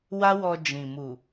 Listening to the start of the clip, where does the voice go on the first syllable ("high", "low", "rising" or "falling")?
high